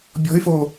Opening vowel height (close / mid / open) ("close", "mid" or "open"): mid